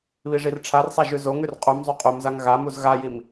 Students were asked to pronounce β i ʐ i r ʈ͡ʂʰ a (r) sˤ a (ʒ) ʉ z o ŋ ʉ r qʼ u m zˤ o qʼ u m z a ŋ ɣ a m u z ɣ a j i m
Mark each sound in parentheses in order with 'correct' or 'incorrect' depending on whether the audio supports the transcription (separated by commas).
correct, correct